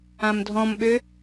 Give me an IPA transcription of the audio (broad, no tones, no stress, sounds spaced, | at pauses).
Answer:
ã m dʱ ɔ̃ m ɓ ø